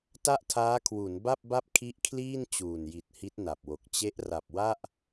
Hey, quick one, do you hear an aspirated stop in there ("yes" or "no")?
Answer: yes